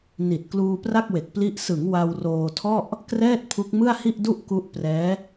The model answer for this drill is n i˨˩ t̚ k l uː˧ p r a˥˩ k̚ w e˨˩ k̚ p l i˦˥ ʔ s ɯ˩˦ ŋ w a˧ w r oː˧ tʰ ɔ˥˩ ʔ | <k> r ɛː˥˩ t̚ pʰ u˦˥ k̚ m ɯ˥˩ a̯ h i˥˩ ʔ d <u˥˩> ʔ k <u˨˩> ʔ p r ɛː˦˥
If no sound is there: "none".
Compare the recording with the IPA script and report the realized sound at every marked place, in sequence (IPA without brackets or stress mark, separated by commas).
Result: k, u˥˩, u˦˥